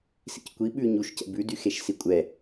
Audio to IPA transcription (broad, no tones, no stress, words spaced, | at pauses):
sḭckʷi ɓʉ ɲuʃcɛ̰ bʉdyxeʃ sikʷʼɛ